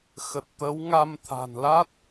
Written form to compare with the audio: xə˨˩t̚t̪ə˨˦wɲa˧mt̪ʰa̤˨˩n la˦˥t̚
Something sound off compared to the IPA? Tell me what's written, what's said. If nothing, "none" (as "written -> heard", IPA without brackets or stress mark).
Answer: ɲ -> ŋ